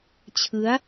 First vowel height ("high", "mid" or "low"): high